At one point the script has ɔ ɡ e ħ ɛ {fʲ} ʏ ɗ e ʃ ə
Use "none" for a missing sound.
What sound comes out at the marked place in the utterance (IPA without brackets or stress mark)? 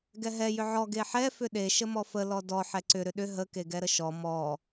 f